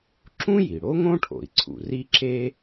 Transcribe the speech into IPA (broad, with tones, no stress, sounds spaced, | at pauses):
ǁ ũ˥ j i˩ ɽ o˥ ŋ õ˥ ʈʰ o̰˩ i̯ ǀʰ ṵ˩ r i˥ ǁ e˥